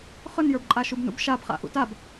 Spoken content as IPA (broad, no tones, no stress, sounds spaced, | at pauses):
χ ɵ n j ə˞ b ǃʼ a ʃ u b n ṵ b ʃ a b χ a̰ ʔ ṵ t a b